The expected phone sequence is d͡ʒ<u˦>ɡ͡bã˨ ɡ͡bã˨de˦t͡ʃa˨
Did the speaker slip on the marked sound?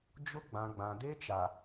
yes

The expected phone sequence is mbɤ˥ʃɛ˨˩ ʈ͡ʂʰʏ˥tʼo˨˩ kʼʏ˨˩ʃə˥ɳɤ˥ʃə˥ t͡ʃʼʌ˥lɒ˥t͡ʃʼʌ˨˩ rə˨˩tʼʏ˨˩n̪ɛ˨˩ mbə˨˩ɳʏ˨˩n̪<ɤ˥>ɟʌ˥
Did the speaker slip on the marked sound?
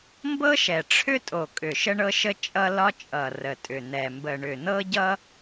no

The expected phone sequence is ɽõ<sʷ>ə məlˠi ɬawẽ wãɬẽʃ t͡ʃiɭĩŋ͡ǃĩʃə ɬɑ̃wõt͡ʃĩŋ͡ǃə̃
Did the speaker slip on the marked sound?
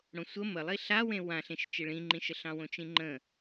no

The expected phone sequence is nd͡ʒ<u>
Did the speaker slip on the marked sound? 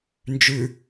yes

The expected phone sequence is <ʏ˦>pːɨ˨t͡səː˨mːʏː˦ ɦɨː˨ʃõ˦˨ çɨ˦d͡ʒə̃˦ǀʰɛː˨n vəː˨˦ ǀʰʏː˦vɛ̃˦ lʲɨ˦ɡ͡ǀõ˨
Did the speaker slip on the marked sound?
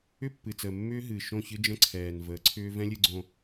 no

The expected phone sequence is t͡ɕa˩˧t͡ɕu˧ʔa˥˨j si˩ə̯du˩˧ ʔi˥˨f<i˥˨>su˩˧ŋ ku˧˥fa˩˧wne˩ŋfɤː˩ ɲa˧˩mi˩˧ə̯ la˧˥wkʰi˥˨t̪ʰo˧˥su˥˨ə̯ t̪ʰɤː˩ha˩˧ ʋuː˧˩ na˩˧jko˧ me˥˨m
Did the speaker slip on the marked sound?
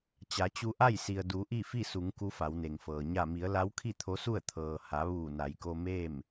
no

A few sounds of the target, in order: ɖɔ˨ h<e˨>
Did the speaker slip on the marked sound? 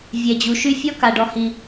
yes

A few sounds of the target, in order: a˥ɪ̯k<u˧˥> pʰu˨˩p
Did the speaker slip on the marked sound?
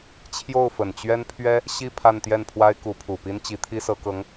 no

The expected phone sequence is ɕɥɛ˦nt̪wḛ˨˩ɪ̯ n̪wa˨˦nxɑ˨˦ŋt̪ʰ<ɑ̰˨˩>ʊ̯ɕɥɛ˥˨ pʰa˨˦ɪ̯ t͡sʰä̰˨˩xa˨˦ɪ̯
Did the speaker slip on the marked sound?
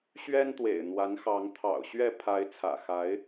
no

